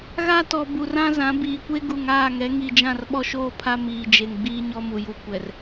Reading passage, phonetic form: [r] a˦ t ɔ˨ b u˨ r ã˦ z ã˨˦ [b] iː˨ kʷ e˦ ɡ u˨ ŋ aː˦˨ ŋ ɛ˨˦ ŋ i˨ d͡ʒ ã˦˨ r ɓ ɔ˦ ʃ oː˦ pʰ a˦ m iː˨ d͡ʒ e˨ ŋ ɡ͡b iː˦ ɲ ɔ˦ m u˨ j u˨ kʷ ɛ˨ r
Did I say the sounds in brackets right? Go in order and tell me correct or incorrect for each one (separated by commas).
incorrect, correct